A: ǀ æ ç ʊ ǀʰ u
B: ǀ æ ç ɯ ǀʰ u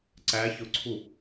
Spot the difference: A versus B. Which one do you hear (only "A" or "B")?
A